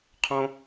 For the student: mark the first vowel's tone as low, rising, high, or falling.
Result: low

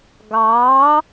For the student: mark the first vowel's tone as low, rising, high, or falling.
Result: rising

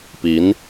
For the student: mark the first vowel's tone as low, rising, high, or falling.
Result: rising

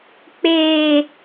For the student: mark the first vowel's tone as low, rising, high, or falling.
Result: low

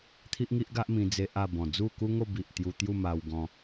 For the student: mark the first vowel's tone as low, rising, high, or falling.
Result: high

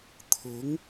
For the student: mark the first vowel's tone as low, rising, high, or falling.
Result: rising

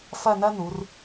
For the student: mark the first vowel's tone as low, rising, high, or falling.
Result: falling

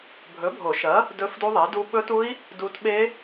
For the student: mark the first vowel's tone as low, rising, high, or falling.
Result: rising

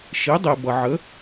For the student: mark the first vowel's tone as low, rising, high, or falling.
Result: rising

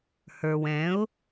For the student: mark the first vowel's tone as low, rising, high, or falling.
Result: low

